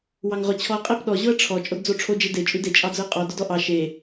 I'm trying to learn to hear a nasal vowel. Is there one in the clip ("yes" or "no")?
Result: no